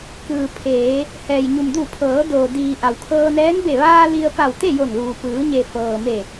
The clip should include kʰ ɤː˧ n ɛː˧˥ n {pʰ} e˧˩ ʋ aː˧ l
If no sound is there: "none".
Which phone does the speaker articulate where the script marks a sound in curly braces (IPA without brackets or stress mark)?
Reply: b